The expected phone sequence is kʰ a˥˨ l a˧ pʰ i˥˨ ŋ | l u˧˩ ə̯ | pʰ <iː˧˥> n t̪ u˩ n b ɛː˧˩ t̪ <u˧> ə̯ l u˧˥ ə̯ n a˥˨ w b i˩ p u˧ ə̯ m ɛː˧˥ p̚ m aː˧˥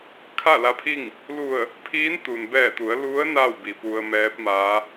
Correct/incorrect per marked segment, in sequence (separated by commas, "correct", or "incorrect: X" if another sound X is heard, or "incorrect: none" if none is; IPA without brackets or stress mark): correct, incorrect: u˩˧